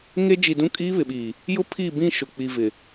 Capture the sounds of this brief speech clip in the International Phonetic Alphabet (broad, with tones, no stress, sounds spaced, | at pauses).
ŋ e˦ d͡ʒ i˨ d ũ˦ kʼ iː˦ β ɪ˨ ɓ iː˨ | j ʊ˦ pʰ i˦˨ b ĩ˦˨ ʃ ʊ˨ k͡p i˨ v ɪ˨